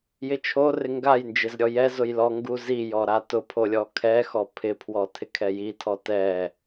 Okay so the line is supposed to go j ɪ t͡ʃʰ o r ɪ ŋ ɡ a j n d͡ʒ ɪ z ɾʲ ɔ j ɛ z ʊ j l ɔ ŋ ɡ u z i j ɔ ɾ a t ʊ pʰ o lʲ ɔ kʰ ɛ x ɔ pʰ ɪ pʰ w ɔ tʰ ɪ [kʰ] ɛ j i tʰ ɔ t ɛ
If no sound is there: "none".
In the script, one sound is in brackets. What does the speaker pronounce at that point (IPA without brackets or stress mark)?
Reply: kʰ